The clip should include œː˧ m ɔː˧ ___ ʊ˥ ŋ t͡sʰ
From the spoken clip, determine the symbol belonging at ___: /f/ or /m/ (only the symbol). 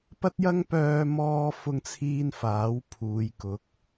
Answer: f